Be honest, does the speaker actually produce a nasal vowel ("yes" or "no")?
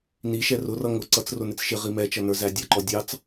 no